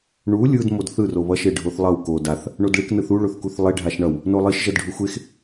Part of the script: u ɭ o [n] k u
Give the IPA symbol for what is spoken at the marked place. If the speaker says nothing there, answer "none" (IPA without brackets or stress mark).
θ